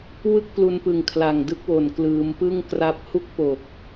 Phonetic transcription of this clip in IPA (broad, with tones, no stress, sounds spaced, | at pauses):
w ɯ˥˩ k̚ p l u˧ n p ɯ˨˩ ŋ kʰ l a˨˩ ŋ d ɯ˥˩ k̚ w o˨˩ n k l ɯː˩˦ m p ɯ˥˩ ŋ k r a˦˥ p̚ h u˥˩ k̚ p o˨˩ k̚